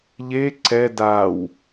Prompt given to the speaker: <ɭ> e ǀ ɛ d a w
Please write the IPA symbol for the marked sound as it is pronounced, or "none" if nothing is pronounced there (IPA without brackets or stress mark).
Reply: ʎ